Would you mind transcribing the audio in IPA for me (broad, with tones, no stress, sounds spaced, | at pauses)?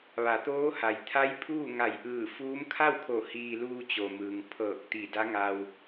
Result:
ʋ a˩˧ t̪ oː˧˥ h a˩ j t̪ʰ a˧˥ j pʰ uː˥˨ ŋ a˧˩ j ʔ ɯː˧˩ f uː˧˥ m kʰ a˥˨ w kʰ o˧˩ h iː˧ l uː˧ t͡ɕ o˩ m ɯː˩ ŋ pʰ ɤː˧˩ k̚ t̪ i˧˩ d a˧˥ ŋ a˧ w